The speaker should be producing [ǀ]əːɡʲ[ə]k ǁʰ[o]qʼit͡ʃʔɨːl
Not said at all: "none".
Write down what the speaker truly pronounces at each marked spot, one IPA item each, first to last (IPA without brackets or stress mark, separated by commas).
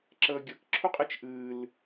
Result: ǁ, ə, u